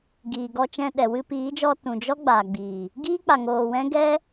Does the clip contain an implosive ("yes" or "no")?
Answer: yes